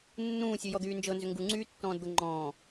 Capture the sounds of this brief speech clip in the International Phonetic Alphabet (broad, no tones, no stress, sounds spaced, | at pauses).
nː ũː sʲ ʉ j ɔ d̪ yː n d͡ʒ ɤ n z ʏ ŋ ɡ u ŋ͡ǀ yː tː ɔ̃ː d d̪ ɤ ŋ͡ǃ ɔ̃ː